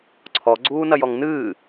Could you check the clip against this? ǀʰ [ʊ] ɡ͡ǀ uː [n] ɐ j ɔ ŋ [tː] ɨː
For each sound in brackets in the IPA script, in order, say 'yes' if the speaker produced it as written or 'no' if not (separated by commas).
no, yes, no